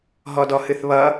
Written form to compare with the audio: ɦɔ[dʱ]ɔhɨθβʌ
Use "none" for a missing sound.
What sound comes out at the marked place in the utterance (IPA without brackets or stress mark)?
d